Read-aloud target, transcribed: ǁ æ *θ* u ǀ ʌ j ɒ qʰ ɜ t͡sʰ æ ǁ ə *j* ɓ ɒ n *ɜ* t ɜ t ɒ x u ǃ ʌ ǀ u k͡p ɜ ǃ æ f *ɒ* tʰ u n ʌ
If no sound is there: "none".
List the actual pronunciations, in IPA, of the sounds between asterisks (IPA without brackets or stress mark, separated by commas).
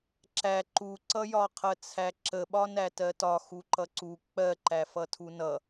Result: ǃ, none, æ, ʌ